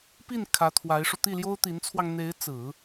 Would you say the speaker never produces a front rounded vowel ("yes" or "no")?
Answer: yes